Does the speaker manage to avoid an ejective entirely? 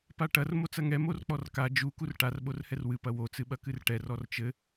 yes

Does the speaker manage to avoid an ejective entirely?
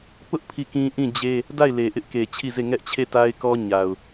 yes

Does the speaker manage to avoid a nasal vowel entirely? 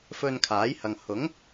yes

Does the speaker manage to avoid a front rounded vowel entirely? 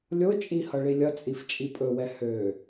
no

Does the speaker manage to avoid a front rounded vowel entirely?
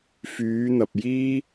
no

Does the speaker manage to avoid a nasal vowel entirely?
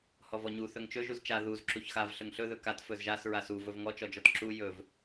yes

